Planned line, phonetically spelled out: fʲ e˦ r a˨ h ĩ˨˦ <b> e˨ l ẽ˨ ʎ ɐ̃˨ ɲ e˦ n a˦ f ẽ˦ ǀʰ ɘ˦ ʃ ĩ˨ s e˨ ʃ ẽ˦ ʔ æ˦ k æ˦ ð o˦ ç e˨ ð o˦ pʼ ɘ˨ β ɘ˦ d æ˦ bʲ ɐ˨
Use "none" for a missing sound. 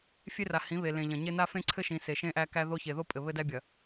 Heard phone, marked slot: β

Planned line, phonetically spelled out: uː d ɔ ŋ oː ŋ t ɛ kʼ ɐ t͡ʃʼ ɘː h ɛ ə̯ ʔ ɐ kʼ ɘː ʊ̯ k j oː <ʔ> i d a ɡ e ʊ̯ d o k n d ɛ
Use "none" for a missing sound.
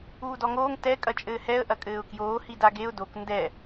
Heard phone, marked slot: h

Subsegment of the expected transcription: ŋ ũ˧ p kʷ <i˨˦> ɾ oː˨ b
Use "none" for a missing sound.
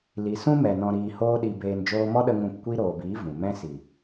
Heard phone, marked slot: i˦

